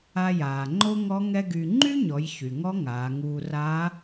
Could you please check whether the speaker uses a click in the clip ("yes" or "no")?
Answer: yes